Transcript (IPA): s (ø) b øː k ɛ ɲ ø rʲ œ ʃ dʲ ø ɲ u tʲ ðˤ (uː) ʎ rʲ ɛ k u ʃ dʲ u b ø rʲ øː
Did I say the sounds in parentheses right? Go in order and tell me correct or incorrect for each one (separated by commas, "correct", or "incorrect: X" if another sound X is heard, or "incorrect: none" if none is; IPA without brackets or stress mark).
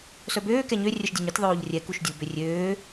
incorrect: œ, incorrect: oː